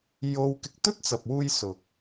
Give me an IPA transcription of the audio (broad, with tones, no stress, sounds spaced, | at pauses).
j o˥ w k ɪ˨˥ k̚ t̪ ɵ˥ t̚ t͡s ɐ˨ p̚ w uː˧ j s ʊ˨ k̚